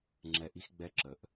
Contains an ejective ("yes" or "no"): no